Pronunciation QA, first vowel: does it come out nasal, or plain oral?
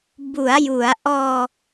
oral